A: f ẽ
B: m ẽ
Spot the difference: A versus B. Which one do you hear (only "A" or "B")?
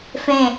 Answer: A